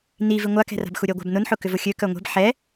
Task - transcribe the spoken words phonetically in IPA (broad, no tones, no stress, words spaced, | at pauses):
nivi ŋʷakɛ̤ra̤bxu ɾʲœɡʷa̤b nʊnħʊkʏ vʊxʲø kœŋʷɛ̤b ħɛ